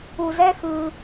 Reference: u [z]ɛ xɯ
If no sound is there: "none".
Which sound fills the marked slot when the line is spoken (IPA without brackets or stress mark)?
z